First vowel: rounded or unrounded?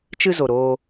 unrounded